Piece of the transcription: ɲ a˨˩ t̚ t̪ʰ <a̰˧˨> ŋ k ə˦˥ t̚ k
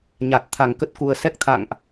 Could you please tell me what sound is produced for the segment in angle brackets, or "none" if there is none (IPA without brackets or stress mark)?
a˧˩